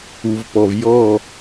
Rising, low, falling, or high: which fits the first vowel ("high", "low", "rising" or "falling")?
low